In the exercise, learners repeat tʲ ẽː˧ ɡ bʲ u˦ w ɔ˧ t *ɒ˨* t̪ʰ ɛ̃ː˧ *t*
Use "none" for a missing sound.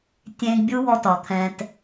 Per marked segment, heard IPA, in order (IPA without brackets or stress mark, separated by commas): ɒ˨, t